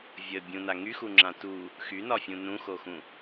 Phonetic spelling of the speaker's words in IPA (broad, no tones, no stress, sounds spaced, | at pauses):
vʲ ə bʲ ũ n a ŋ y x u ŋ͡ǁ ã t u | x y n ɒ fʲ ũ n ũ x o x ũ